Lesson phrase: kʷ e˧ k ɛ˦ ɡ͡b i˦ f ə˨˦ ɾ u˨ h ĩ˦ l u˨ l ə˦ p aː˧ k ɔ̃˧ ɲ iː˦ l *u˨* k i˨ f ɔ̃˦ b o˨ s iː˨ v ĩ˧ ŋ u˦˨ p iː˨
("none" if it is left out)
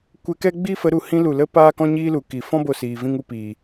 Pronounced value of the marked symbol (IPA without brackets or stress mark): u˨